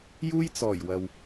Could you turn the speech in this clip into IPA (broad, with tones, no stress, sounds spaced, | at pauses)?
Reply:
j uː˥ j t͡s ɔː˨˩ j w ɐ˨ w